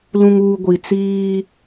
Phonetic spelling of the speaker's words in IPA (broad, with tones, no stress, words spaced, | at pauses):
lũ˨ŋuː˨ ɡʷi˨t͡siː˦